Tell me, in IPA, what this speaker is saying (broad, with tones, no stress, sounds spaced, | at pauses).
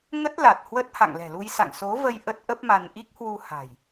ŋ ə˦˥ t̚ l a˨˩ t̚ h w ə˦˥ t̚ h a̰˧˨ ŋ l ɛ̤˨˩ l u˧ j s a̰˧˨ ŋ s o˨˦ v ə˧ j ʔ ə˦˥ t̚ ʔ ə˦˥ p̚ m a˧ n ʔ i˦˥ k̚ h w u˧ h a̤˨˩ j